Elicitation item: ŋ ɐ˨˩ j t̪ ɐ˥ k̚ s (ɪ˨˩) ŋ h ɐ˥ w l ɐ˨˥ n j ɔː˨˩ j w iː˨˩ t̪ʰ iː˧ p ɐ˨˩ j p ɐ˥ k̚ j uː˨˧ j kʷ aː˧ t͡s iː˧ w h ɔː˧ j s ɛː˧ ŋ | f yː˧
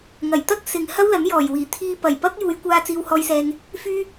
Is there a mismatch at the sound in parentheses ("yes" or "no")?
yes